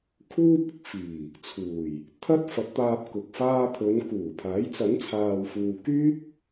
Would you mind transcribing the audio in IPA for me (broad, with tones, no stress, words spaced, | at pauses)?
kʰuː˥p̚ɪ˧k̚fiː˨˩ | t͡sʰuː˨˩j | t̪ʰɐ˥t̚ fɐ˨˥t̚t̪aː˧p̚kʊ˨k̚ faː˧t̪ʰɵ˨˧n kuː˨˩pʰaː˨˥j t͡sɐ˨˥nt͡sʰaː˨wfuː˨ kyː˥p̚